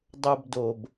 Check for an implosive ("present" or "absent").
absent